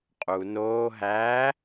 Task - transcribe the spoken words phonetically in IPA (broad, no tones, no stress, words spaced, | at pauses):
qʼu noː ɦæː